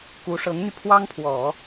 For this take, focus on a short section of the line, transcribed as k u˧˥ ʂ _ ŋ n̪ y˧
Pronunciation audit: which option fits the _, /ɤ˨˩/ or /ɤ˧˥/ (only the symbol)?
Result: ɤ˧˥